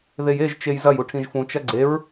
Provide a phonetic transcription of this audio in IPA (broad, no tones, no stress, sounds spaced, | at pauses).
ð e j e ʒ t͡ʃ e j z ɐ j u ʈʰ ĩ ʒ f ũ t͡ʃ ɐ ɡ͡ǀ e ɹ